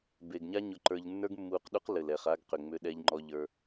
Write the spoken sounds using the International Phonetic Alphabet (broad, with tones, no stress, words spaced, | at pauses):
be˨ɡ ɲa˦ɲʊ˧ǃə˞˧ʎ nːə˞˦ɡmːuː˧qɗu˦q lɘ˨l ɛ˨χa˧ɡqʏ˨ŋ͡mʏ˧ ɗɛ˧ʎŋ͡ǃɔ˧ʎə˞˧